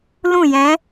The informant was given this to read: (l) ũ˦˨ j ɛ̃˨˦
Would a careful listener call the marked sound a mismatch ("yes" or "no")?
no